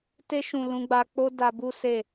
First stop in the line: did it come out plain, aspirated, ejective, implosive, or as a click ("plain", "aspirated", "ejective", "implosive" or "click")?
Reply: plain